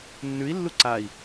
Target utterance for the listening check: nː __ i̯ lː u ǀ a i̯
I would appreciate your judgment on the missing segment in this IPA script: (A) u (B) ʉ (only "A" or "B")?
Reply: B